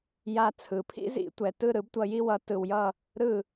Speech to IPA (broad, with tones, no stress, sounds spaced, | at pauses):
j a˧ t͡sʰ ɯ˩ pʰ ḭ˥ z ḭ˧ tʷ ɛ˩ t ɯ˥˩ ɾ ɯ˩˥ b tʷ ʌ˧ j i˥ w ʌ˩˥ t ɯ˩ w j ʌ˥˩ | ɾ ɯ˥˩